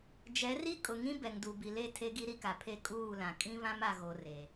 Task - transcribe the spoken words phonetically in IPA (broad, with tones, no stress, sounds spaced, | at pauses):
d͡ʒ ɛ˨˦ r i˦ kʼ ʊ˨ ŋ ĩ˦ b ɛ˨ ŋ d u˨ b i˨ l e˦˨ tʰ e˦ ɡ i˦ ɾ i˦ k a˨ pʰ e˦ kʼ uː˦˨ l ã˨ kʼ ĩ˦ β ã˦ m a˨ ɣ o˨ r e˨